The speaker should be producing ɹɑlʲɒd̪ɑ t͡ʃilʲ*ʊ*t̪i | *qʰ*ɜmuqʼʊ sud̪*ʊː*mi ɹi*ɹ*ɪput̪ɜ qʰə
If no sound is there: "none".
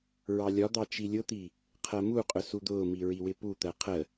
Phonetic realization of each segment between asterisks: ʊ, qʰ, ʊː, w

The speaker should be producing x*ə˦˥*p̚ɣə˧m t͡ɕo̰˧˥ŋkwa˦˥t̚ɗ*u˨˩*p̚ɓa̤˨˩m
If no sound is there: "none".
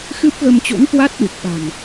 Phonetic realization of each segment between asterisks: ɨ˦˥, u˨˩

